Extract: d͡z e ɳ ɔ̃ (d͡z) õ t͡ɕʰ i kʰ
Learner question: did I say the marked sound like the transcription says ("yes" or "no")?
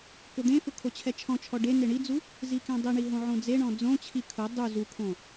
yes